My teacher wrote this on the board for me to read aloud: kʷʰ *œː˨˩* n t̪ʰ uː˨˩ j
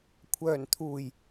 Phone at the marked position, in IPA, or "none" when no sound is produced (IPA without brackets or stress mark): œː˨˩